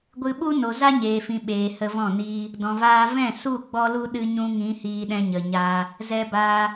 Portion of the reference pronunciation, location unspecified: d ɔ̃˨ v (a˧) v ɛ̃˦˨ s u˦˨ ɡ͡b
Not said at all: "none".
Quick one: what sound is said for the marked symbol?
aː˧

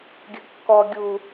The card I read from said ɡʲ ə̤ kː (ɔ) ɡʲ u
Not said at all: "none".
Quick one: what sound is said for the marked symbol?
ɔ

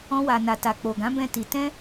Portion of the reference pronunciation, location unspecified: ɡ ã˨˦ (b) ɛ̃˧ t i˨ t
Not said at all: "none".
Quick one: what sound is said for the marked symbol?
b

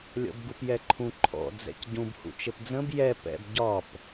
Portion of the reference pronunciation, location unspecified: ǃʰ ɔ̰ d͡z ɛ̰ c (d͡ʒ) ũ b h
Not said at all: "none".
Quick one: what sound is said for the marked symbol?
ɟ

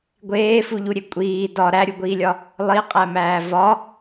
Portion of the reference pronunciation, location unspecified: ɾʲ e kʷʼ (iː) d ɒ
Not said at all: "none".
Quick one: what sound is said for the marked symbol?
iː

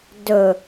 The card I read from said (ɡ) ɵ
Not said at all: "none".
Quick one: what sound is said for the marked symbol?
d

